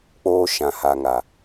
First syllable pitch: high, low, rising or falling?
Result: high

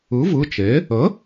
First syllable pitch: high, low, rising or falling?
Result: rising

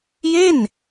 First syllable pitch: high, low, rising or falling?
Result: falling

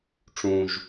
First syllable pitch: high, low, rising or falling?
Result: low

